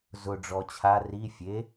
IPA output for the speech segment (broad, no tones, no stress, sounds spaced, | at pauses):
z ʊ ɖ͡ʐ ɔ t͡ɕʰ a r i fʲ e